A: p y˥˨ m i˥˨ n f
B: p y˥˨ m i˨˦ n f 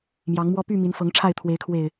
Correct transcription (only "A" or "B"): B